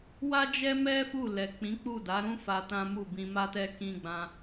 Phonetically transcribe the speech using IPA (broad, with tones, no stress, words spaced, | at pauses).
wa˦d͡ʒɛ˦mɛ˦ fu˦˨lɛ˨k͡pĩ˨˦k͡pu˦˨ da˨˦ɾũ˦fa˧ tã˦mu˦˨ bĩ˧ma˦tɛ˦ kĩ˧ɡ͡bã˧